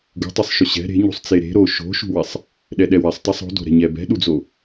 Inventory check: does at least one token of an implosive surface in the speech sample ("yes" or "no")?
yes